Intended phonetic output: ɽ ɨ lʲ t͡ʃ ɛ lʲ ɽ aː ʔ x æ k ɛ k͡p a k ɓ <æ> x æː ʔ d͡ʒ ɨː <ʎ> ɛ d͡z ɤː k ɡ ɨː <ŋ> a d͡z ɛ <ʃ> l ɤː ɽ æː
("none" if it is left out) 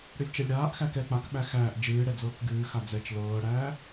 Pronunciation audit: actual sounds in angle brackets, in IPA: æ, ɽ, x, t͡ʃ

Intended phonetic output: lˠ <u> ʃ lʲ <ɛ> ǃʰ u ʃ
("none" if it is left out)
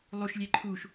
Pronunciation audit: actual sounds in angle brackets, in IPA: u, ɛ

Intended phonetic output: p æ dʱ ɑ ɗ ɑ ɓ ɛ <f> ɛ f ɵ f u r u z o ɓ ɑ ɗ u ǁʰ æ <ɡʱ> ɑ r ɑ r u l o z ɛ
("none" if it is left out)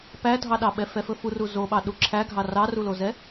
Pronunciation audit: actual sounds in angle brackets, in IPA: f, ɡʱ

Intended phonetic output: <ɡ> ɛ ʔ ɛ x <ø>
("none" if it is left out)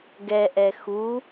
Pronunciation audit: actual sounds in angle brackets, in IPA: ɡ, u

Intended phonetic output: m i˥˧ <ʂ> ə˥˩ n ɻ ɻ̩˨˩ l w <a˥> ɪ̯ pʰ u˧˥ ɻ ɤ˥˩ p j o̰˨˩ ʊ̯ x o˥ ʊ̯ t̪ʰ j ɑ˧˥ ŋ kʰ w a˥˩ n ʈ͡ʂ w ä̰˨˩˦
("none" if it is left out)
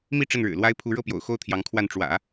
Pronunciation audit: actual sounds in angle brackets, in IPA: ʈ͡ʂ, a˥

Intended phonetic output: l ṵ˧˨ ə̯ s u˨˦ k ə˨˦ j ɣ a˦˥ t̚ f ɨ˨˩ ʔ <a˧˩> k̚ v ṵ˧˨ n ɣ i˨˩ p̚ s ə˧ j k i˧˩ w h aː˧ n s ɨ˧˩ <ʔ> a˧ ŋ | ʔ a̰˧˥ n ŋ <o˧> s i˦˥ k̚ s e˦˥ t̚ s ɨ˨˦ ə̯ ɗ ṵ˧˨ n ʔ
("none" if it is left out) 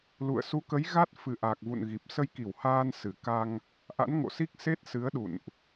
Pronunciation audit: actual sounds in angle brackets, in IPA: a˨˩, k, o̰˧˨

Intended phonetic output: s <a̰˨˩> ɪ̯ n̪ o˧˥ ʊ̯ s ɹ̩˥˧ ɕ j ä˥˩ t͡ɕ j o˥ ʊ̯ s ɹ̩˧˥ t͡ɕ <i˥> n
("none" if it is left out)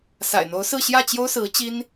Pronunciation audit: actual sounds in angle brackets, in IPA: a̰˨˩, i˥

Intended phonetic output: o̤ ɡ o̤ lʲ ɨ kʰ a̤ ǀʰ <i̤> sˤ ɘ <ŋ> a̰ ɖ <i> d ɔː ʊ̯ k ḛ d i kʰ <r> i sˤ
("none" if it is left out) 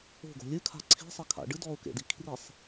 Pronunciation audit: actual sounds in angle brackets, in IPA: i̤, kʰ, ɨ, r

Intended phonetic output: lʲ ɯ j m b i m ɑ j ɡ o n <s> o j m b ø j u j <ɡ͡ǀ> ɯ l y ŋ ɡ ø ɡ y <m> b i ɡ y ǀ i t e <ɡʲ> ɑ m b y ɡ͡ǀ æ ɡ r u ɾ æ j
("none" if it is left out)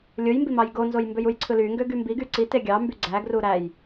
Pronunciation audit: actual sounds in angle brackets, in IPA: z, ǀʰ, m, ɡʲ

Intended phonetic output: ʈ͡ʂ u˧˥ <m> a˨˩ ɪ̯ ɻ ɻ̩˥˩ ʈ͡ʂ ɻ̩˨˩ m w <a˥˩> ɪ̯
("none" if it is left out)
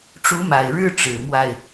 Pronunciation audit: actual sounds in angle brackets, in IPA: m, a˥˩

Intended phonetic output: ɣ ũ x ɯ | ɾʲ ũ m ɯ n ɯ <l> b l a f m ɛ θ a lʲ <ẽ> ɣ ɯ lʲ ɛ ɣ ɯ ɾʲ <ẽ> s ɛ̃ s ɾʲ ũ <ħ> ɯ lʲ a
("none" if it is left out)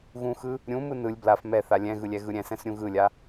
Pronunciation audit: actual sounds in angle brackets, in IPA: lʲ, ɛ̃, ɛ̃, ɣ

